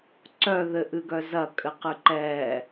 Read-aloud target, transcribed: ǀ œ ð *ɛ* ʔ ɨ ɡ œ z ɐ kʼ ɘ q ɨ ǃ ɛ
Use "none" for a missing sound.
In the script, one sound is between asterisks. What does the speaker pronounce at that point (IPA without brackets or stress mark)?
ɘ